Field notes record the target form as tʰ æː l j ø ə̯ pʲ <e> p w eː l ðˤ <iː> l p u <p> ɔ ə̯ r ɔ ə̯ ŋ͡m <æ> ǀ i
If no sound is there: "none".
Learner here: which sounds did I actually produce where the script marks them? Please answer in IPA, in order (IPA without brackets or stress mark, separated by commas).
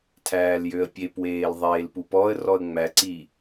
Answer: e, eː, p, æ